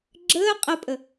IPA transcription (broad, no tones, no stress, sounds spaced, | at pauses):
ɡ͡ǁ əː qʼ ə pʼ ə